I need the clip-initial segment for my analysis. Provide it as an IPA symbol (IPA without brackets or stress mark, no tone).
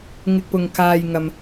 ŋ